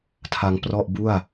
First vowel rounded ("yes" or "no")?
no